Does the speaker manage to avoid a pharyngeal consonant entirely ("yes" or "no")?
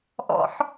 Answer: no